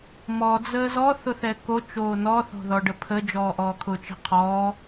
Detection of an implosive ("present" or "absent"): absent